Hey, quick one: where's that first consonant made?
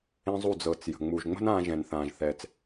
tongue tip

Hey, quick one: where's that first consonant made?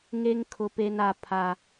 velum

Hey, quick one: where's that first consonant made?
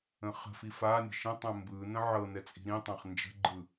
uvula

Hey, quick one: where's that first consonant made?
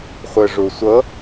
uvula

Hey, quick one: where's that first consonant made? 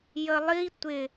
palate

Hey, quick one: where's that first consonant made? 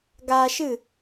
velum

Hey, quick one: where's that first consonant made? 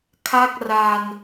velum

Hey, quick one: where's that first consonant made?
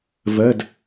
lips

